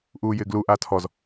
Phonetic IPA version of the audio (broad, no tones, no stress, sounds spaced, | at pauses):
ʔ uː j ɪː ɡ l u ʔ a tʰ ɔ z